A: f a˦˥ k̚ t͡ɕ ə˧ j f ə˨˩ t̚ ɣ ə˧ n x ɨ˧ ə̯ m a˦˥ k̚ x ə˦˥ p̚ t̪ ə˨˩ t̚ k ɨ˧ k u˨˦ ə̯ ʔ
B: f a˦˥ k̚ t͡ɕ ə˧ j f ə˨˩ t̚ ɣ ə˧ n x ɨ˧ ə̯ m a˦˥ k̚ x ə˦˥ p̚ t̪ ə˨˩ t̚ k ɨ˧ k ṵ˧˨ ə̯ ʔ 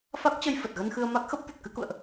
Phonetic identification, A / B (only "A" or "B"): B